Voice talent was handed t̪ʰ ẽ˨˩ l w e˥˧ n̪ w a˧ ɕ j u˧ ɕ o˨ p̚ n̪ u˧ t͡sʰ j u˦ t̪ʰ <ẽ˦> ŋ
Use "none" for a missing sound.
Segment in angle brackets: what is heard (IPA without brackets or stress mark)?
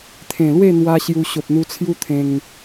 ẽ˧